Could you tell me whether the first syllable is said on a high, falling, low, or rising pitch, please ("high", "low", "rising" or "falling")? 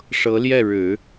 rising